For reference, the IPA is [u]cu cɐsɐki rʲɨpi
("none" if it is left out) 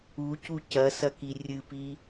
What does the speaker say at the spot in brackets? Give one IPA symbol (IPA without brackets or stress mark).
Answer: u